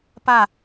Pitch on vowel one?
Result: falling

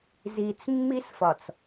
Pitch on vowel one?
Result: low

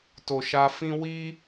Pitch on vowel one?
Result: low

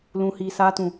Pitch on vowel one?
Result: low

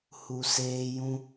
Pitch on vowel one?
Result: low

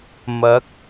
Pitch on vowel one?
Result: rising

